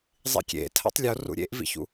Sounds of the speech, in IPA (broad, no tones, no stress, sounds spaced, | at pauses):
zˤ ḭ kʲ ḛ tʰ a̰ tˤ lʲ o r ṵ ɾʲ ḛ ʔ v ḭ ç ṵ